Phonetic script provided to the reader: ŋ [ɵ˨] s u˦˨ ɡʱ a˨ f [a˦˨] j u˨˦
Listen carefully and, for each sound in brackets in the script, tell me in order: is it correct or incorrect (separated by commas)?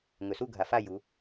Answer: correct, correct